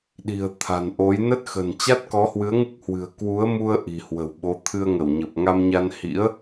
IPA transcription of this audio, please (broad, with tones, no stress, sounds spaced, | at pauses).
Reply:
ɗ i̤˨˩ ə̯ t̪ʰ a̤˨˩ n ʔ o˨˦ j n ə˦˥ t̚ x ə̤˨˩ n t͡ɕ a˦˥ t̚ k ɔ˨˦ h w ɨ˨˦ ə̯ ŋ ɨ˦˥ k̚ h w ɨ̤˨˩ ə̯ k w u˨˦ ə̯ m u˧ ə̯ ʔ i̤˨˩ h w ə̤˨˩ w ɓ o˨˦ t̪ʰ ɨ˧ ə̯ ŋ ə˧˩ w ɲ ə˨˩ p̚ ŋ a˧ m ɲ a˧ n h ḭ˧˥ ə̯